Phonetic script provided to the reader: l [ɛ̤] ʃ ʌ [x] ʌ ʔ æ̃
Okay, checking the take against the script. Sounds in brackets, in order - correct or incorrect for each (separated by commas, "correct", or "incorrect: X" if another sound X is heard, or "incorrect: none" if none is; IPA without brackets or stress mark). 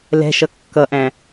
correct, incorrect: kː